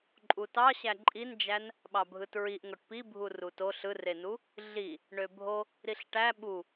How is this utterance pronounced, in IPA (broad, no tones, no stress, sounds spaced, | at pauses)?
ǃʼ u t ɑ ɕ æ ǃʼ i n d͡ʒ æ n | ɓ ɑ bʱ ɯ t ɹ i ʔ ŋ o ʈ p i bʱ u r u t o ɬ ɯ r e n u | ɮ i | ɳ ø bʱ o | ɾ i ɬ ʈ æ ɓ u